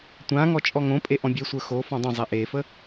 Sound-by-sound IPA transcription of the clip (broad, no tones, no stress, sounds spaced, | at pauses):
tʷ ã ŋ ɔ t͡ʃʼ ɔ ŋ õ pʼ e ʔ ɔ̃ bʲ e sʷ ə˞ x o f ɔ̃ dˤ õ zˤ e ʔ e f ə